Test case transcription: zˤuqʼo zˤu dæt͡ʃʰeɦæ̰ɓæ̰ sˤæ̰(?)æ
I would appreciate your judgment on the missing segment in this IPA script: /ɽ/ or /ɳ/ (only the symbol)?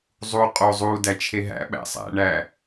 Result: ɳ